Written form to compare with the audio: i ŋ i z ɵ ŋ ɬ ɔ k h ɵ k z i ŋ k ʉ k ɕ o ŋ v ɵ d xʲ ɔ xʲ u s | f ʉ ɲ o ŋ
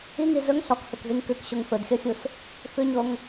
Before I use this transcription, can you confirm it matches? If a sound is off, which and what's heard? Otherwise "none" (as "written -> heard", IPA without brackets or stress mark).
v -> f